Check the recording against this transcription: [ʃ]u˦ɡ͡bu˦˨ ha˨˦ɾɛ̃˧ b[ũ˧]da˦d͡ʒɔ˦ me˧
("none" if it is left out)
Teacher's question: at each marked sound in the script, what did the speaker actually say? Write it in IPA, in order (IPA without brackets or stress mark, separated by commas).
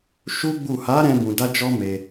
ʃ, ũ˧